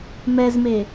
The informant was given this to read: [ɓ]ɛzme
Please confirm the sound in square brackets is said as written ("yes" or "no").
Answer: no